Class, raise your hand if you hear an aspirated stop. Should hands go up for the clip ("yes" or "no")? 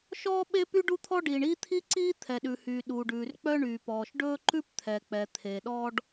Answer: yes